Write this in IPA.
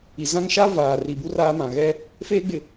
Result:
i˨ z ã˦ ŋ ʃ a˦ v aː˨ r i˨ b u˦ r aː˦ m ã˨ ɣ ɛ˦ | f eː˦ ɡ͡b ɪ˨

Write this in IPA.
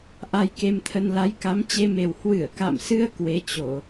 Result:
ʔ a˧ j k e˧ m t̪ʰ ə˧ n l a˨˦ j k a˨˦ m t͡ɕ e˧ m e˨˩ w h w ɨ˧˩ ə̯ k a̰˧˨ m s ɨ˧ ə̯ k w e˨˦ t͡ɕ o˧˩˨

